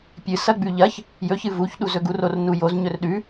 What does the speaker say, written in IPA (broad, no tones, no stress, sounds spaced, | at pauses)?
pʲ ɨ s ɐ ɡ͡b ʉ ʎ ɐ ç | j ɵ ç ɨ v u ç ɗ u z ɵ ɡ u r o r n u j o z ɲ ɵ r ɗ ʉ